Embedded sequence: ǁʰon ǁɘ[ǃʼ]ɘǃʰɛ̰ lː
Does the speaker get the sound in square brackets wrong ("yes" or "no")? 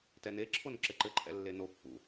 yes